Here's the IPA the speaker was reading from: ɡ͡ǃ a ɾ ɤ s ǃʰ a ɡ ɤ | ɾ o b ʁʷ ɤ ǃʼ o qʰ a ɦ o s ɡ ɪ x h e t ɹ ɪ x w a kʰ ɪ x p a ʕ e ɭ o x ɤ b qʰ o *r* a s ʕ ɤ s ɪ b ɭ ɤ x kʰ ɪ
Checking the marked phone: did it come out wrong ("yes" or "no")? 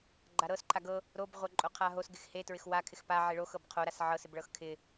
yes